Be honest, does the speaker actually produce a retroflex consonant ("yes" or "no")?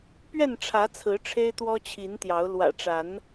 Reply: yes